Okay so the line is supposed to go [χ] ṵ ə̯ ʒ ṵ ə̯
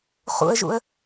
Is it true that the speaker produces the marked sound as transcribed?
yes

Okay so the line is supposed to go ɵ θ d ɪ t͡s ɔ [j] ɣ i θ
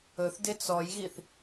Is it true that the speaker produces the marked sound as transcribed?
yes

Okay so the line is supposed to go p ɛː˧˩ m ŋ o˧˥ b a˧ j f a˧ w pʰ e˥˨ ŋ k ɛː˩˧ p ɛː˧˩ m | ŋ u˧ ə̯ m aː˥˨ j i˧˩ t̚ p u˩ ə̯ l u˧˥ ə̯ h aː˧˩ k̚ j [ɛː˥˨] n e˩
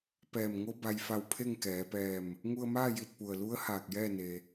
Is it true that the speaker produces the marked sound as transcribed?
yes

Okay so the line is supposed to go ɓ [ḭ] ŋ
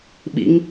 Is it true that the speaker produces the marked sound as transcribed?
yes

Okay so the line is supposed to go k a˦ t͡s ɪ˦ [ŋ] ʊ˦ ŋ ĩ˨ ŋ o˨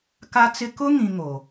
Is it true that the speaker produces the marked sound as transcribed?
no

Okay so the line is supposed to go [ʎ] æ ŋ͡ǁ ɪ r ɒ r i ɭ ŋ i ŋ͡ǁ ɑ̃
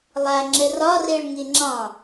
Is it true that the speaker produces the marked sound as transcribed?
no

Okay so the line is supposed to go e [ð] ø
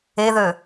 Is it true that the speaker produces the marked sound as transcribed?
yes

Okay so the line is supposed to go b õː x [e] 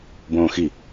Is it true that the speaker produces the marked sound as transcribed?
no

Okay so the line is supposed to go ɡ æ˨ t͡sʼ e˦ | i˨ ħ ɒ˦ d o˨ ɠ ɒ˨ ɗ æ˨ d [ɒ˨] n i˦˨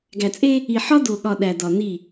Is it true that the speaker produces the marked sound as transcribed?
yes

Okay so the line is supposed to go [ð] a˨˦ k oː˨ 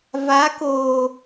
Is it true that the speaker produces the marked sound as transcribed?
no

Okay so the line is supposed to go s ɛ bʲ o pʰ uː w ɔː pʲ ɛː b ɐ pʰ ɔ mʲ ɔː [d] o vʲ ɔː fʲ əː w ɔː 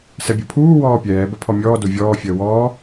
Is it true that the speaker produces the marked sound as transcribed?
yes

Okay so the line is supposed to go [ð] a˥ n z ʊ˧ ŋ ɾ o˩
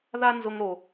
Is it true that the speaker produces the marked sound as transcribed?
yes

